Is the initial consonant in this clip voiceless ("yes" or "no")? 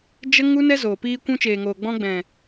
no